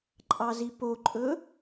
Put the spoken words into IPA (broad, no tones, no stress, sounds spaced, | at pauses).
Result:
ǃʼ ɑ z i p o ǃʼ ɵ